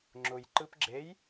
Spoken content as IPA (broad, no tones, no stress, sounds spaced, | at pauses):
ŋ͡ǁ ʊ j ǃ ɯ p ɡ͡ǁ e j